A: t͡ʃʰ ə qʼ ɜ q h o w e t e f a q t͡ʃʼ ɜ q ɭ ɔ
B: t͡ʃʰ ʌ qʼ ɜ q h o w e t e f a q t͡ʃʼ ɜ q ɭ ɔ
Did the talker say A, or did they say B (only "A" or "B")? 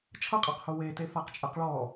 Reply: B